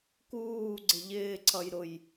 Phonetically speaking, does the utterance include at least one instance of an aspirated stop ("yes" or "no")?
yes